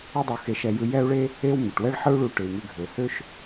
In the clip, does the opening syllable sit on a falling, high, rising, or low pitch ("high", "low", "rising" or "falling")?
high